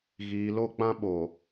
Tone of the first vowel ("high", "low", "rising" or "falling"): low